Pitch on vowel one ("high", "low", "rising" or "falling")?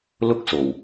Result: high